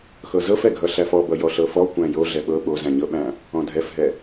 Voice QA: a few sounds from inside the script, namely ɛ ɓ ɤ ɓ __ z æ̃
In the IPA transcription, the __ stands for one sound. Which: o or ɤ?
o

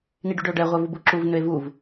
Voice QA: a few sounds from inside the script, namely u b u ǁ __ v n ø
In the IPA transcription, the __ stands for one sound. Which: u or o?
u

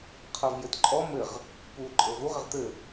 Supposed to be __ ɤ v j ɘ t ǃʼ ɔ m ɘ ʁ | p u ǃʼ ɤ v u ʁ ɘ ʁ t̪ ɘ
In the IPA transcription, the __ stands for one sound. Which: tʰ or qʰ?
qʰ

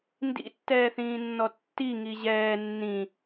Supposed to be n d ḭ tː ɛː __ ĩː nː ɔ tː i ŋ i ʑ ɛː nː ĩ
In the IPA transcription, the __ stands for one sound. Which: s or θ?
θ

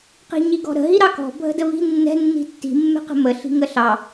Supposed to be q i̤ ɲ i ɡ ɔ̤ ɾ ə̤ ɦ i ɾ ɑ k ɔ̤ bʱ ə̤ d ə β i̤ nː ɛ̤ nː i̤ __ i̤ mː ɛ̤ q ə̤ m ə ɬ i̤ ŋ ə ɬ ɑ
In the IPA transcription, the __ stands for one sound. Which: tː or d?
tː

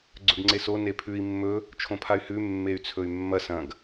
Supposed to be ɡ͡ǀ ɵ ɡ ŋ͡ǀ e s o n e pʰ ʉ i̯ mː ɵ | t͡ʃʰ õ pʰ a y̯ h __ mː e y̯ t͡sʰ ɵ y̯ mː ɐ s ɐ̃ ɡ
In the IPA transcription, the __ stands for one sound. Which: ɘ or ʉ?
ʉ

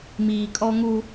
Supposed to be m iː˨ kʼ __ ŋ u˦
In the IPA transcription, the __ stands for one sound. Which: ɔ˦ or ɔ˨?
ɔ˦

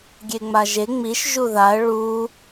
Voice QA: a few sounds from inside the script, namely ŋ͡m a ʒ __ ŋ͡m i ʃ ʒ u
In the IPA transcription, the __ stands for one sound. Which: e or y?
e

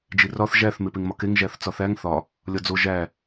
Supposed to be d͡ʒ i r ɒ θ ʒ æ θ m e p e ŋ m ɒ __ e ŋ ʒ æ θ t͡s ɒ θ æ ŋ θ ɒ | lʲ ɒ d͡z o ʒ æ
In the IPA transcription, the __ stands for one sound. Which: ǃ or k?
k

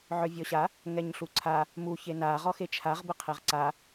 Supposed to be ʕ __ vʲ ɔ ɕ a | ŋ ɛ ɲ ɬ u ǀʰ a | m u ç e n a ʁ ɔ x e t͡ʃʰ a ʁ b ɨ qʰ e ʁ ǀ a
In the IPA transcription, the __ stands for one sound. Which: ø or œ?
œ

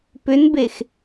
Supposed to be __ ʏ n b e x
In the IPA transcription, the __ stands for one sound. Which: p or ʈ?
p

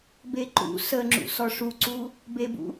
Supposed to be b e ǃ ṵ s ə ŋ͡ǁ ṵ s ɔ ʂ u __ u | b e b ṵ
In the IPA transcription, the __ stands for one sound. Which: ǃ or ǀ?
ǀ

